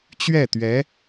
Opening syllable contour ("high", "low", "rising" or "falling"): falling